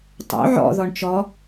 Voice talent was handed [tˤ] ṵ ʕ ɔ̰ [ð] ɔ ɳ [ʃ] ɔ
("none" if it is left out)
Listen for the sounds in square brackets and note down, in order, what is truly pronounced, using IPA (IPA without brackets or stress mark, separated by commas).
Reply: tˤ, ð, t͡ʃ